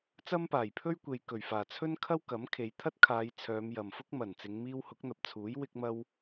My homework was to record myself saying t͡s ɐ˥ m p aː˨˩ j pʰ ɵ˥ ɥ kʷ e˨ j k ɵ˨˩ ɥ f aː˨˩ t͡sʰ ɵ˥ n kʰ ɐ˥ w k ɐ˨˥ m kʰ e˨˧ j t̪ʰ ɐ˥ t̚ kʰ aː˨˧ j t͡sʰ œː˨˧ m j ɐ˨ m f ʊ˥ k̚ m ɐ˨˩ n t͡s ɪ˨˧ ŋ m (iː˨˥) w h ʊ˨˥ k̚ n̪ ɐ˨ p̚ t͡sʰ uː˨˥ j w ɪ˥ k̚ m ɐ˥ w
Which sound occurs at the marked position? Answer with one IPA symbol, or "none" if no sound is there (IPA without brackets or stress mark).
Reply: iː˧